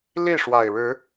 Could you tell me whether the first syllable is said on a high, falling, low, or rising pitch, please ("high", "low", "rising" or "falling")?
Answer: falling